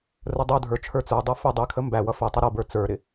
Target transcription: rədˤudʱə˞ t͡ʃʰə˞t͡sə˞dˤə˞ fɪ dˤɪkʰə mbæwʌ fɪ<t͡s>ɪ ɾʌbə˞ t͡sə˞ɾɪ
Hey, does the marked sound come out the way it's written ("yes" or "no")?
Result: no